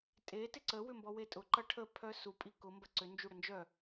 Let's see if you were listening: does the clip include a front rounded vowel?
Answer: yes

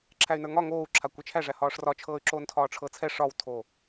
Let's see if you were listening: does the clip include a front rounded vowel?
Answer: yes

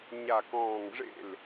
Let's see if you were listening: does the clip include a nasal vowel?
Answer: yes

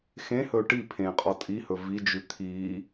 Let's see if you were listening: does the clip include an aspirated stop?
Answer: yes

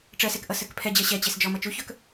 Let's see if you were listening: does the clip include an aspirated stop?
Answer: yes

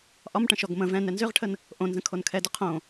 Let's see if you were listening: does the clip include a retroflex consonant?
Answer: yes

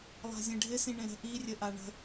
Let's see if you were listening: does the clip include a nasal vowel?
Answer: yes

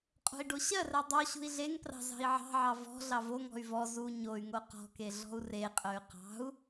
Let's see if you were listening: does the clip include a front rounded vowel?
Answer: yes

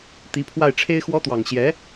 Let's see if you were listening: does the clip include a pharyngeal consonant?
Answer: no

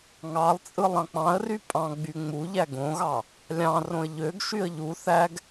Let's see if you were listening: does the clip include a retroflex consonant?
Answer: no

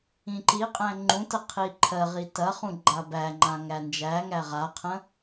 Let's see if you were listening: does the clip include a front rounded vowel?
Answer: no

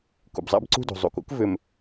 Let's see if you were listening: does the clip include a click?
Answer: yes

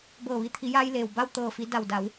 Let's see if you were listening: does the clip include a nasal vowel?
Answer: no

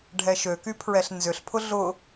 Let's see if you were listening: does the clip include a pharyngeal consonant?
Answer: no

